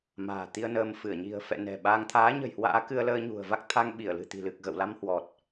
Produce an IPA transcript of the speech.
m a̤ː˨˩ t̪ i˧ ə̯ n əː˧ m f ɨ˧˩ ə̯ ɲ i̤˨˩ ə̯ f ɛ̰˧˨ n ɛ̤˨˩ ɓ a˧ ŋ t̪ʰ aː˨˦ ɲ ə̤˨˩ j h w a̰ː˧˥ k ɨ˧ ə̯ l əː˧ ɲ ṳ˨˩ ə̯ v a˦˥ k̚ t̪ʰ a˧ ŋ ɓ i˧˩ ə̯ l ɨ̤˨˩ t̪ i̤˨˩ l ɨ˨˩ k̚ ɣ ə̰˧˨ w l a˧ m h w ɔ˨˩ t̚

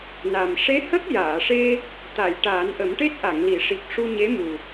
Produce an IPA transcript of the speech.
n a˨˩ m ʂ e˧˥ h ə˦˥ k̚ j aː˨˩˨ ʂ e˧ | t̪ a˨˩˨ j ʈ aː˨˩˦ n ʔ ə˨˩˦ m ʈ e˦˥ t̚ ʔ a˨˩˨ ŋ l i˨˩˨ ʂ i˨˩ k̚ ʂ u˧ ɲ e˧˥ m u˨˩

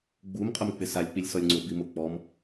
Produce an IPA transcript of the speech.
ɡ͡b u m qʼ ʊ m k͡p ɪ s a lʲ k͡p i lʲ s ɔ lʲ ŋ͡ǀ ʊ b i m ʊ k͡p ɔ m

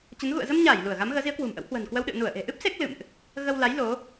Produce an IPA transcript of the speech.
t͡ɕ ə˨˦ n ɣ ṵ˧˨ ə̯ z ə˧ m ɲ aː˧˩ j l u˧˩ ə̯ ɣ a˨˦ m ɣ əː˨˦ z i˨˦ ə̯ k w ṳ˨˩ m ʔ ə̰˧˥ w h w ə̤ː˨˩ n k w ə˧ w ɗ ɨ̰˧˨ ə̯ n u˧˩ ə̯ ʔ e̤˨˩ ʔ ɨ˦˥ p̚ s e˦˥ k̚ l ɨ̰˧˨ m ʔ | ɣ ə˧ w l a˨˦ j l o˨˦

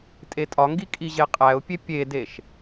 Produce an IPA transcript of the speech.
tʼ e tʼ ɒ ŋ ɡ i kʼ i ʑ e qʼ æ ʊ̯ pʲ e pʲ e d e ʃ

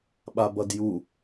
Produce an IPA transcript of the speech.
ɓ a b ʌ d j u

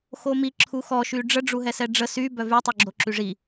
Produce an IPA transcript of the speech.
x o m i ǁʰ u x ɔ ʃ y ɖ͡ʐ ə ɖ͡ʐ u ɦ ɛ s ɛ ɖ͡ʐ ə s y b œ v y tˤ u ɡ͡ǁ o ǁ y ʐ i

